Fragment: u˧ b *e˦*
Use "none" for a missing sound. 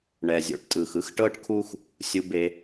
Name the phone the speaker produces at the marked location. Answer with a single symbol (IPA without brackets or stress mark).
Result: e˧